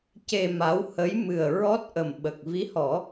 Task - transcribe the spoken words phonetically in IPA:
c e˧ m a˧˥ w h ə˧˥ j m ɨ˨˩ ə̯ ɹ ɔ˦˥ t̚ ʔ ə˨˩ m ɓ ə˨˩ k̚ v i˧˥ h ɔ˨˩˦

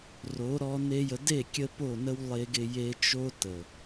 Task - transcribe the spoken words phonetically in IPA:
r o˨˦ ɾ ɔ˧ n e˦ j ə˧ d e˦˨ kʲ ə˧ p o˦˨ n ə˦ w lˠ e˧ ɡ ɪ˧ j e˧ t͡ʃ o˦ t ə˨

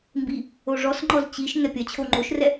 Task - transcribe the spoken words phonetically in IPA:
m b i | o ʐ ɔ s ŋ͡ǃ ɔ z t͡ɕ i ʃ ŋ ɛ pʲ ɐ t͡ɕʰ o ŋ͡ǃ o ʃ r ɛ

